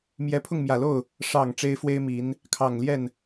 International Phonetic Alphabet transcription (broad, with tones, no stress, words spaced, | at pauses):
mjɛ˧˥pʰʊ˥˩ŋmjä˨˩lo˥˩ʊ̯ | ʂɑ˨˩ŋ ʈ͡ʂe˥ɪ̯fwe˥ɪ̯mi˧˥n | kʰɑ˨˩ŋljɛ˥˩n